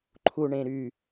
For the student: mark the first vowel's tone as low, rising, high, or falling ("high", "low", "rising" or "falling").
low